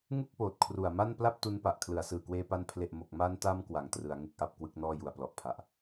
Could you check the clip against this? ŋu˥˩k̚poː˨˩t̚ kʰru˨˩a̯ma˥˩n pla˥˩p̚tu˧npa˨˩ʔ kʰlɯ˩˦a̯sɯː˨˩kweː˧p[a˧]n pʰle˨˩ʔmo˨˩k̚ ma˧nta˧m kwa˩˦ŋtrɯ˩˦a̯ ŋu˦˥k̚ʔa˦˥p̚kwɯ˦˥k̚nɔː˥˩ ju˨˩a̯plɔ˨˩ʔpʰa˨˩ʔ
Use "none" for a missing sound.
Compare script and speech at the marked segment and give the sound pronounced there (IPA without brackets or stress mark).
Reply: a˧